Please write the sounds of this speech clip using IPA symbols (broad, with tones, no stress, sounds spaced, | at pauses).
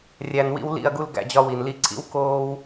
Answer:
rʲ æ˧ n w ḭ˦ w l ḭ˦˨ ɐ̯ ɡ u˦ l ɡ æ̰˧ d͡ʑ ɒ˦ w i˨ n l i˧ ǀʰ ḭ˦ w k oː˦ w